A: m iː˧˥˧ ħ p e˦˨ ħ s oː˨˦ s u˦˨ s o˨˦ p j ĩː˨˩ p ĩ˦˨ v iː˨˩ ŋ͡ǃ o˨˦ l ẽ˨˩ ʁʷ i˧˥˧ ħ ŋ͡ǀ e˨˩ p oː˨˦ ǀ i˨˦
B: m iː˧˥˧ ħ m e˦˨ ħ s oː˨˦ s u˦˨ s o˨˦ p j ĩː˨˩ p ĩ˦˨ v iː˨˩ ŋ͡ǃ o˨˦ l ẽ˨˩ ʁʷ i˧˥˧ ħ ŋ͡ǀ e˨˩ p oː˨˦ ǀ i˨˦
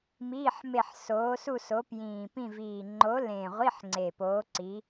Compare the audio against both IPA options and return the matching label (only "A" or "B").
B